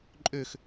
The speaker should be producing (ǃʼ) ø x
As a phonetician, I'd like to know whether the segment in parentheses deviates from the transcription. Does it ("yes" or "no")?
no